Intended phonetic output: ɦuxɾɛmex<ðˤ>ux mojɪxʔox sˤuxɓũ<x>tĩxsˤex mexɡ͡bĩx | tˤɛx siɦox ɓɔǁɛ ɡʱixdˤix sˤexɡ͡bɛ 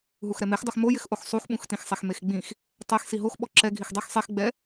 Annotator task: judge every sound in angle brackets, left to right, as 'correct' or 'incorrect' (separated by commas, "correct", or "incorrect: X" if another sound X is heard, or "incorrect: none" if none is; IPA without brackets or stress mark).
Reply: incorrect: dˤ, correct